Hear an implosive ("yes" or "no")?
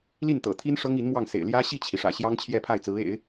no